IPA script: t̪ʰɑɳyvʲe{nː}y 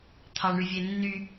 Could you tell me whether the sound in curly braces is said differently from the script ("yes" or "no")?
no